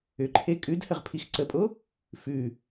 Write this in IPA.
ʏǃʰe kʼʉdhəʁpʰix ǀəpʼo | fʉ

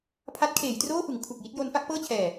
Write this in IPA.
pʰa˦˥t̚kʰeː˩˦jtroː˥˩fɯ˩˦ŋ kʰu˨˩k̚ji˦˥t̚jo˦˥n fa˦˥k̚pɤː˥˩t͡ɕʰɛː˨˩

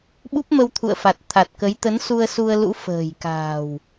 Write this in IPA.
ɓu˦˥p̚mə˧wt̪ʰṵ˧˨ə̯ fa˨˩t̚t̪ʰa˨˩t̚kə˨˦j t̪ə˨˦nsu˧ə̯ su˧ə̯lṵ˧˥ fə̤ː˨˩j ka̤ː˨˩w

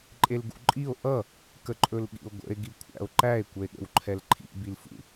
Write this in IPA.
ǃʼelɡṵǃʼio̯ ʔʌ | kəǃʼɵlɠḭo̯ɡʷə̰e̯ ɡikʷʰæ̰o̯ǃæe̯ kʷəe̯ɠə̰wǃʰɛlǃʰḭ bilfṵ

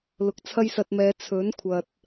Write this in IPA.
lʊ˨˥k̚t͡sʰɐ˥jsɐ˧t̚mɛː˨˧ t͡sʰɵ˨˥n kʷʰɐ˨t̚

